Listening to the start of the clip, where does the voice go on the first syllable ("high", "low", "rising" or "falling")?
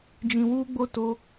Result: low